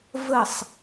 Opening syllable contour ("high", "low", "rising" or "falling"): falling